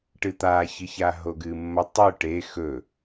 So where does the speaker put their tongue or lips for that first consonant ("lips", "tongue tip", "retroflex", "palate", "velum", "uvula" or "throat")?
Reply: retroflex